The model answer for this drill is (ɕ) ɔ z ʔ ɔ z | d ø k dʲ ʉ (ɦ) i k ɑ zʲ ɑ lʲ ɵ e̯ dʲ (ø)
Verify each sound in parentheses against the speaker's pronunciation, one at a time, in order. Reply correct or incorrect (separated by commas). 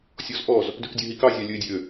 incorrect, correct, correct